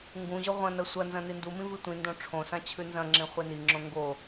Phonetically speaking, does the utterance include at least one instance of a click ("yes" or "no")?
yes